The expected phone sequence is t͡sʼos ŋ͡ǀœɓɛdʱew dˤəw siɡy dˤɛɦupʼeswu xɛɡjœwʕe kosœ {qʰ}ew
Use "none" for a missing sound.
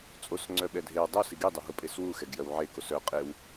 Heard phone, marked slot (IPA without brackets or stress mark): qʼ